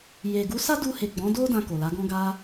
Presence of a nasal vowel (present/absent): present